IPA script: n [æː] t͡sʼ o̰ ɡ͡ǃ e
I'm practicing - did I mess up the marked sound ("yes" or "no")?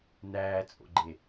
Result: no